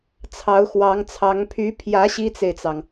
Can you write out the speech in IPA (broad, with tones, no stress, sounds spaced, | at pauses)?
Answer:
t͡sʰ ɑ˧˥ ʊ̯ x w ɑ˧˥ ŋ t͡sʰ ɑ˧˥ ŋ pʰ y˧˥ pʰ j ä˧˥ ɕ i˥ t͡s e˨ ɪ̯ t͡s ɑ˩ ŋ